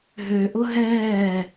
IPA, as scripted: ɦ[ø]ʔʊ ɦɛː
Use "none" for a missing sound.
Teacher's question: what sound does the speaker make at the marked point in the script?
ø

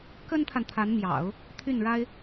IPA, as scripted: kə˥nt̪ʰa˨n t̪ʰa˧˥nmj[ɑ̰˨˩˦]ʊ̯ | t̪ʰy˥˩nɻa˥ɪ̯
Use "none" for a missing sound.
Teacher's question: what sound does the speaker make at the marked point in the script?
ɑ̰˨˩˦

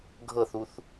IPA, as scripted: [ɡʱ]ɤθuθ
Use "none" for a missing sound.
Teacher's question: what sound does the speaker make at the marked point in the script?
ɡʱ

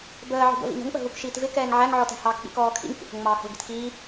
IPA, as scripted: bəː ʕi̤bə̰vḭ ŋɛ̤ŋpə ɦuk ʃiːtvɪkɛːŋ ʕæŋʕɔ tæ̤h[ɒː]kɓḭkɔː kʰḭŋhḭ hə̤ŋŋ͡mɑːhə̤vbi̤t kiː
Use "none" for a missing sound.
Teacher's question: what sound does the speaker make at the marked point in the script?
ɑː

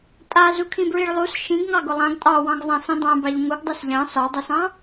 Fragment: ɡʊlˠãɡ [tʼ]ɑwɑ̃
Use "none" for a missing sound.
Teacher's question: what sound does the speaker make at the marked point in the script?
tʼ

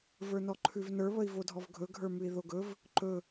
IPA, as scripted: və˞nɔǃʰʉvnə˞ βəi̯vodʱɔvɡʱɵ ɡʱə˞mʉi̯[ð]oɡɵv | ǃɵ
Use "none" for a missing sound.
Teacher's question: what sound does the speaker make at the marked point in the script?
ð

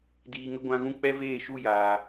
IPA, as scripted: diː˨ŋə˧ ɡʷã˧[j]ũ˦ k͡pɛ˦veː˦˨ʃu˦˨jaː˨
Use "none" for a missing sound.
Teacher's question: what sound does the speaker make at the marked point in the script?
ɣ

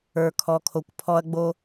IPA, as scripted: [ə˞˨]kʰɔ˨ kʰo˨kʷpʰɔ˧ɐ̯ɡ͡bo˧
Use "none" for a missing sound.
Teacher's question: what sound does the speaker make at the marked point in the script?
ə˞˨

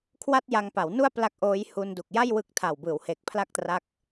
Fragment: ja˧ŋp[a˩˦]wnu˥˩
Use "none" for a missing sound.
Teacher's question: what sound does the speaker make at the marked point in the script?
a˩˦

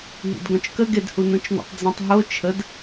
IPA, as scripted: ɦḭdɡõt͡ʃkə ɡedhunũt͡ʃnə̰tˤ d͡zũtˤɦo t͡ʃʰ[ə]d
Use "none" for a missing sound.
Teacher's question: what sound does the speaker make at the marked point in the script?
ə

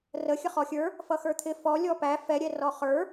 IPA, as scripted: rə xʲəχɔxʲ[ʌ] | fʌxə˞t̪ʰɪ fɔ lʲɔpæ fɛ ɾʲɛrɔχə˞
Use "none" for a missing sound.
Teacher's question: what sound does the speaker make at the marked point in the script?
ə˞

